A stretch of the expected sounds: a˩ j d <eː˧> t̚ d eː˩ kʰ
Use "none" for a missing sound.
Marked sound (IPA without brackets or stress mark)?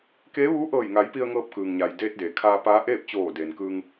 eː˧